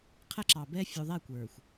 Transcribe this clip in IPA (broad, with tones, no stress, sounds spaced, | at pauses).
qʰ æ˦ ǁ ɑ˨ b ɛ˦ fʲ u˨ ðˤ ɛ˦˨ kʷ ə˞˨ xʷ